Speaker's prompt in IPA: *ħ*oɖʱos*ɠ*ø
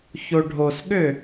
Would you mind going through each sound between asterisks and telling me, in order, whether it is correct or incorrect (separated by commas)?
incorrect, correct